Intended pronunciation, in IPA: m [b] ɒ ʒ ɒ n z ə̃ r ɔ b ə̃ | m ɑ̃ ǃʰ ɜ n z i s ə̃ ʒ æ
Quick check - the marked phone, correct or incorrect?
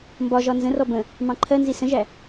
correct